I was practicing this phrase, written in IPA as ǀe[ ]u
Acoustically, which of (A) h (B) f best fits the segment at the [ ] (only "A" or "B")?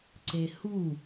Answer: A